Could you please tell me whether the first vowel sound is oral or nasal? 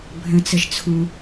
nasal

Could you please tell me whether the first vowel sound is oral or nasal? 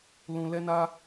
nasal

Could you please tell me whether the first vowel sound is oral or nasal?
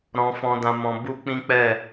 nasal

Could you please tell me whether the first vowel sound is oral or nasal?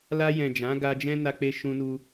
oral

